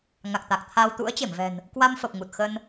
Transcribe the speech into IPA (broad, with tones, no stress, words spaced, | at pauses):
ŋa˨˩k̚t̪a˨˩k̚t̪ʰa˧w t̪ṵ˧˥ə̯t͡ɕe˧˩mvɛ̤˨˩n | kwa˧mfə˨˩p̚ ŋu˨˩t̚xə˧n